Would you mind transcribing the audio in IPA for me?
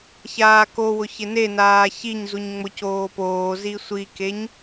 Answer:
çaːkowʊ çɪnenaː çiɲzuɲ ŋ͡mʊcoːpoːzi sʷikeɲ

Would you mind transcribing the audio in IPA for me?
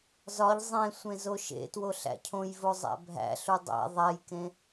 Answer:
zɒʎ zˤẽ sʷẽzoʃḛtwo ɬæ̰cʰõjvo zˤæ̰bʱæ̰ɬu dˤæ̰ ðˤæjkẽ

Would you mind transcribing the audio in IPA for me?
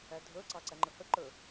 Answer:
ædʱə˞ǀɑ ǀæŋ͡ǃəhəǃə˞

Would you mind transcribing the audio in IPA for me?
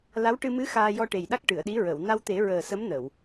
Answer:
la˧˥wʈɨ˧ mɨ˧˥ xaː˧jɔ˧ʈe˨˩jɗa˦˥k̚ ʈɨ˨˩˨ə̯ɗi˧˥ ɹə˨˩˨w na˧wt̪e˨˩˦ ɹəː˨˩sə˧˥mnə˨˩˨w

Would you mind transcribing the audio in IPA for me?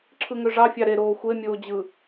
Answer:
ǁʰɯŋøʐɑ fʲɑɾe ɾoːxʷe mʲoːd͡ʑɯ

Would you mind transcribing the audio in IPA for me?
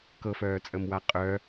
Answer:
kɤfœːt͡sʼəmwa qʼœ

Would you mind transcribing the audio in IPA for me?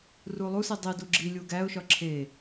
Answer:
rulˠusi dˤidu ɡ͡ǁi lʲuɡæʊ̯ʃɒ ǁʰe

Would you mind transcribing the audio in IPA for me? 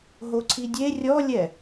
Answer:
ɦoǀʰidʲe rʲɔlʲɛ

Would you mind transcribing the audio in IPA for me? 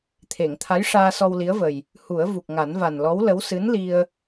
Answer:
t̪ʰe˨˩˨ŋ t̪ʰa˧˥j ʂaː˧sɔ˧w li˧˥ə̯və˨˩j | hu˨˩˦ə̯ vu˨˩k̚ŋa˨˩˦nva˨˩n lɔ˧˥wlə˧˥w sɨ˧˥nli˧ə̯

